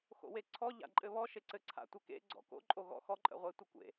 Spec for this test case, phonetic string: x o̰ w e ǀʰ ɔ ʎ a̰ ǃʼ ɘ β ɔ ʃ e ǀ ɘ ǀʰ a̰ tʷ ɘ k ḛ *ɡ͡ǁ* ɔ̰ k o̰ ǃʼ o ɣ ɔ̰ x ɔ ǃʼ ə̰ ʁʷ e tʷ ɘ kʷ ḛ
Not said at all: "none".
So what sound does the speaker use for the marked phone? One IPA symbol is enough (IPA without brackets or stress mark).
ɡ͡ǀ